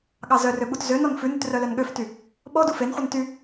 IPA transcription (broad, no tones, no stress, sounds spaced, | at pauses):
ɠ ɑ z œ r ø ɓ u t z ø n ɔ n f ʉ n ʉ t r œ l œ n ɠ ø f t y | ɓ ɔ d u f e n χʷ i n t y